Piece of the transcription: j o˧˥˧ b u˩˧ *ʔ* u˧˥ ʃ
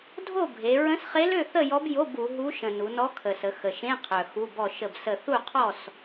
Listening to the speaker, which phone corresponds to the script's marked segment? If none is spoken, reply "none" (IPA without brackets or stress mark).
ɦ